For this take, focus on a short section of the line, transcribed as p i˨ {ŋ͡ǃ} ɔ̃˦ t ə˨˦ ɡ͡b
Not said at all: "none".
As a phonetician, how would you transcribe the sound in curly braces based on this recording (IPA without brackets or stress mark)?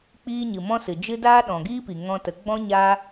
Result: ŋ